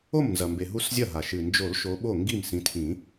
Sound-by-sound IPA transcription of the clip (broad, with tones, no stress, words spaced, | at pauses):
o˥˩mnzɐ˩mbe˩ ɦu˦szʲɐ˥˩ɦa˩ ʃɨ˩nd͡ʒo˨˩˦l ʃo˨˦ɓo˥˩ŋɡi˥˩m sĩ˨˦tʰĩ˨˩˦